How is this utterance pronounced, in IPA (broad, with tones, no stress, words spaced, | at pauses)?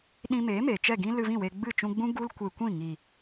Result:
ɗĩ˧meː˨˦ me˨t͡ʃɛ˦˨ɡĩ˦ lɨ˧vĩ˦˨we˧ɡ͡bɨ˦˨ t͡ʃũ˧ɡ͡bũ˦ ɡu˦lkʷe˧kʷĩ˦˨ ŋi˨